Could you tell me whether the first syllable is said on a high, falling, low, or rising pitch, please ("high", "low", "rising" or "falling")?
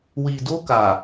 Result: low